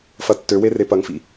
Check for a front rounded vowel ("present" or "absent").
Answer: present